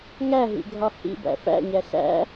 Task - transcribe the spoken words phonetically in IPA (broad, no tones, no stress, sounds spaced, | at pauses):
ŋ æ ɦ ḭ ɡʱ ɒ h ḭ b æ̰ f æ̰ ɲ æ ɬ æ̰